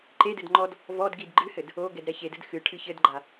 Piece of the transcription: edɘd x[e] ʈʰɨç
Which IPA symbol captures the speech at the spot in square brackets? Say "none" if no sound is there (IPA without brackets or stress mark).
ɨ